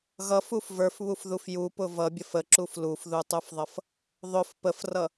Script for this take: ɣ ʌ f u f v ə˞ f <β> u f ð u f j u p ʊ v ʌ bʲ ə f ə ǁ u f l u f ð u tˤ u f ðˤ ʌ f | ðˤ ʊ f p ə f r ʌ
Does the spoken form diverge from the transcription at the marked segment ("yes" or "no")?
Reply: no